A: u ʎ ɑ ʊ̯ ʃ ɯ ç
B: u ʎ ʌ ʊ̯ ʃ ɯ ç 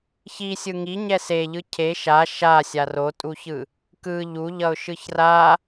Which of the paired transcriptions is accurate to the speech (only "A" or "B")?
B